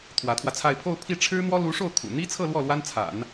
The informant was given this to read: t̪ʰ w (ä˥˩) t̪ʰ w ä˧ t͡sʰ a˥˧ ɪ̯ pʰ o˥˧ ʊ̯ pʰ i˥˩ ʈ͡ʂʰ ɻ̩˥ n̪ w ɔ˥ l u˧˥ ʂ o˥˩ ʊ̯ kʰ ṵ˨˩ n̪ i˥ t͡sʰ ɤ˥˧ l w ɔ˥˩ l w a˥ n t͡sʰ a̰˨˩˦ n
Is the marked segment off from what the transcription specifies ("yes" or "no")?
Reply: yes